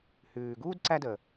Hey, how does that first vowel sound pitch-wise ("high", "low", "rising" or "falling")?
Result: low